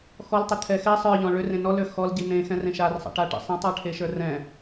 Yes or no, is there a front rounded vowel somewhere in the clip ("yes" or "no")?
yes